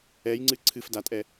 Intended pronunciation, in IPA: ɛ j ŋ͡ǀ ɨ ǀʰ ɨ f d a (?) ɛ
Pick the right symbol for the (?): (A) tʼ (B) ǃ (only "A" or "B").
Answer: A